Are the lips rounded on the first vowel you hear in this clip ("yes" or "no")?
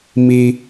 no